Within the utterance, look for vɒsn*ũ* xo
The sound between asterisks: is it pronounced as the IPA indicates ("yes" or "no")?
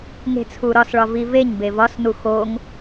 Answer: no